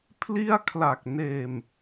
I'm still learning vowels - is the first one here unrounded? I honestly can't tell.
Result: yes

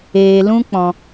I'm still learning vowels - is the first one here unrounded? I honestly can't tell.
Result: yes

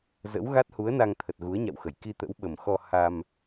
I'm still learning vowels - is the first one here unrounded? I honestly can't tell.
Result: yes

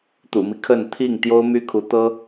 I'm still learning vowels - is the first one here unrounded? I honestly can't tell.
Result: no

